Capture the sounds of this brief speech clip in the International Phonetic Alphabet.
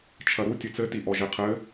t͡ʃʰ ɐ ɾ u tʲ ɨ t͡s ɘ t i ʔ ɔ ʒ e qʰ ɘ

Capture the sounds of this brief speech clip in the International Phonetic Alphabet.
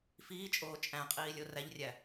f iː t͡ʃʼ oː t͡ʃʼ æ̃ qʼ iː lʲ o r æ ʎ rʲ æ

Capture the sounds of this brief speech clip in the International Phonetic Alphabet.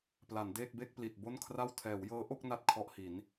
p l a˩˦ n d eː˥˩ k̚ b e˥˩ k̚ p l i˨˩ t̚ b o˥˩ n kʰ r a˥˩ w tʰ ɛː˩˦ w j ɤː˦˥ ʔ o˥˩ k̚ n a˥˩ t̚ kʰ ɔ˦˥ ʔ h i˩˦ n

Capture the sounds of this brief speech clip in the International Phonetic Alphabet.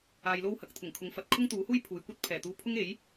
aː˨ j l o˧ w h ɐ˨ k̚ t̪ʰ ʊ˨˩ ŋ kʰ ʊ˨˧ ŋ f ɐ˨˥ t̚ kʰ ʊ˥ ŋ t̪ uː˨˥ h uː˥ j pʰ uː˨ j kʷ ɐ˥ t̚ pʰ ɛː˨˩ t̪ uː˧ pʰ ʊ˥ ŋ e˨˥ j

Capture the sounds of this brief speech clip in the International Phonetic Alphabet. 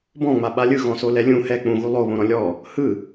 b ɔ̃ ŋ͡m a ɓ a lʲ ɯ ɣ ɔ̃ s o l ɛ lʲ ũ h ɛ k͡p ũ ɣ u lˠ o β õ ɾ ɔ̃ lʲ ɔ | h ɯ

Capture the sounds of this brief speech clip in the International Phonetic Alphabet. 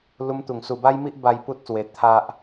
l u˧ m t̪ u˨˩ ŋ s u˨˩ b a˧ j m i˦ ʔ b a˧ j p u˦ t̚ s w e˧ t̪ʰ a˦ ʔ

